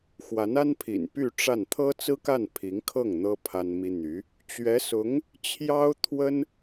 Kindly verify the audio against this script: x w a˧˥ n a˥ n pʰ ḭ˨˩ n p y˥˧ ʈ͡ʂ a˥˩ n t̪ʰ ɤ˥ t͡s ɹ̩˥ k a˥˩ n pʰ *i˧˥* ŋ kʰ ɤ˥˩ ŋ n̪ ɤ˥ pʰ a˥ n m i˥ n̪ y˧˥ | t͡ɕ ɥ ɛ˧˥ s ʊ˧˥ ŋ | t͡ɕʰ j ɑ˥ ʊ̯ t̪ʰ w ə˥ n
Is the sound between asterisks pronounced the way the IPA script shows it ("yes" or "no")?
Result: yes